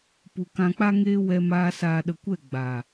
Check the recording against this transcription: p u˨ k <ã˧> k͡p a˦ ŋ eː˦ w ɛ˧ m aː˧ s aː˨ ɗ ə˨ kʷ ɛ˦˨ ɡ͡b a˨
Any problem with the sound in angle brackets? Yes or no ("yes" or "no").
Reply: no